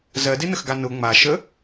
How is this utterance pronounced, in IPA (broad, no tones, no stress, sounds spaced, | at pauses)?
z ɜ d e n ə x ɡ a n ʊ ŋ͡m a ʃ ə